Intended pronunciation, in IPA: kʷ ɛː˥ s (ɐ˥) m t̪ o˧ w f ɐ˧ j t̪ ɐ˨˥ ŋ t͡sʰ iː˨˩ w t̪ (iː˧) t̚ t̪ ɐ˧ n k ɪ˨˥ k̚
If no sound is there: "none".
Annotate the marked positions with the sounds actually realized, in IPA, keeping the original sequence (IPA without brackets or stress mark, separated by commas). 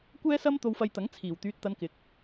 ɐ˥, yː˧